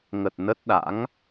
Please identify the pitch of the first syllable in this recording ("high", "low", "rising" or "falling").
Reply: low